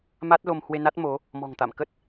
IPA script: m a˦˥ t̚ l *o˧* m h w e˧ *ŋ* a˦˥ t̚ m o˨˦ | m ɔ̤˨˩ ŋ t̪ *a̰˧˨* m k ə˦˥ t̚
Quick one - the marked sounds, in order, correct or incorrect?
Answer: correct, incorrect: n, correct

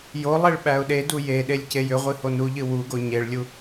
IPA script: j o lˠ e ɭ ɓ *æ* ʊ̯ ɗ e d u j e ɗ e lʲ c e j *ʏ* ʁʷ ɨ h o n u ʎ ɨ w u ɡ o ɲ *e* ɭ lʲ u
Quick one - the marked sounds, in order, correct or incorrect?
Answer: correct, correct, correct

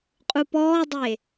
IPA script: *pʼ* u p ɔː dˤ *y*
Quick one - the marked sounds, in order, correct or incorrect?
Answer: incorrect: qʼ, incorrect: e

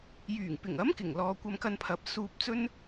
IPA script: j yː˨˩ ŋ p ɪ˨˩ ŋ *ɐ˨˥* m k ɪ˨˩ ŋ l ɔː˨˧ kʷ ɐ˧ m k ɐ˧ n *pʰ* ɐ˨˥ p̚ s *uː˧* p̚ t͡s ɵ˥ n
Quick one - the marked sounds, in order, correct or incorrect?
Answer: correct, correct, correct

